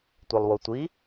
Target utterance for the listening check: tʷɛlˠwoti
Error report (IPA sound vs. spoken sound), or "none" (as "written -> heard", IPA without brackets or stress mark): t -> tʷ